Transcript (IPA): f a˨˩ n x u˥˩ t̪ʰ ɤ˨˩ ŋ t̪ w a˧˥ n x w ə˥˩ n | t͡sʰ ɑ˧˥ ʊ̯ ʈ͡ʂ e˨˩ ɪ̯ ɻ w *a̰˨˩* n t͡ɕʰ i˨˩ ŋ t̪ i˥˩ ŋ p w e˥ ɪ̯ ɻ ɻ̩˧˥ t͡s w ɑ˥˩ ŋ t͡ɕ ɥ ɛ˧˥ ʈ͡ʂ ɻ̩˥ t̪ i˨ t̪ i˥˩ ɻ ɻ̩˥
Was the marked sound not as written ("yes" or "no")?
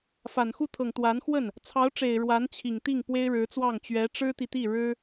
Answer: yes